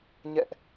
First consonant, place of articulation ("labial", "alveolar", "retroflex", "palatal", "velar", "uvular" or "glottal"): palatal